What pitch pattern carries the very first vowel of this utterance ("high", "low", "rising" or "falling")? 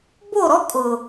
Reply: falling